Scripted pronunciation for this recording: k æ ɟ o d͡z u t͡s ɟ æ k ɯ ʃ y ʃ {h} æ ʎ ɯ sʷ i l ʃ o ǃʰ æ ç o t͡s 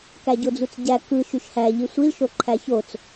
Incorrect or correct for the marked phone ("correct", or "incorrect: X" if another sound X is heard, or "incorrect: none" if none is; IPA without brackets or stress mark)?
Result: correct